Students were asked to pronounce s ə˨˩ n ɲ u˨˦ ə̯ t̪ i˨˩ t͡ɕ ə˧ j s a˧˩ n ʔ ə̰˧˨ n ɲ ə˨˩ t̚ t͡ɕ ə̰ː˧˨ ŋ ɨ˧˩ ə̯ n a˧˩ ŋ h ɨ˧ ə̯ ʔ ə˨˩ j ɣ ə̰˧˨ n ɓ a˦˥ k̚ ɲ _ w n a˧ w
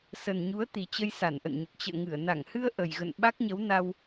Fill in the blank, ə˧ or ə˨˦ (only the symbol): ə˨˦